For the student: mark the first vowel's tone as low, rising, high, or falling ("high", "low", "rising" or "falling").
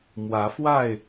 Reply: rising